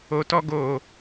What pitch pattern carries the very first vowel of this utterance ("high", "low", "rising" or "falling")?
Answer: low